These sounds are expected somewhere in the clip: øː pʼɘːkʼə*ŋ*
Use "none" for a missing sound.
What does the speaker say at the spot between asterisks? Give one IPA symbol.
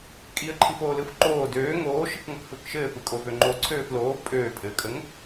ŋ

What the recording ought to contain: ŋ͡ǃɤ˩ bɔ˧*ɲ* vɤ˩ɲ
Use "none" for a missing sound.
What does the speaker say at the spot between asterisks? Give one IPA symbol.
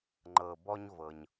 ɲ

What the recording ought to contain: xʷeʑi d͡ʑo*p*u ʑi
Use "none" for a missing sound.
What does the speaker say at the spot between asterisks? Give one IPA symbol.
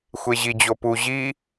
p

